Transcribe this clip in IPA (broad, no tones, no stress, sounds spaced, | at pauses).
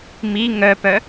m i ŋ œ p œ